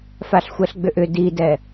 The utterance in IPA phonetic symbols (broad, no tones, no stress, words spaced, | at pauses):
faɬxʷɛɬɡ͡bʏʔʏ didɛ